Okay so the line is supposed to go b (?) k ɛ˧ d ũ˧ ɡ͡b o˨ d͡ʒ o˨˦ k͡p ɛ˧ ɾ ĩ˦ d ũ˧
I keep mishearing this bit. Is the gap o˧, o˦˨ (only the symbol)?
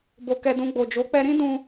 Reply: o˧